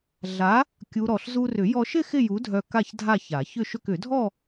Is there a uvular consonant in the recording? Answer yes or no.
no